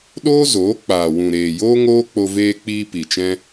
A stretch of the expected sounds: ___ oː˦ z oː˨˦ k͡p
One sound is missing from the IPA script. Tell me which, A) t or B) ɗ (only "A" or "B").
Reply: B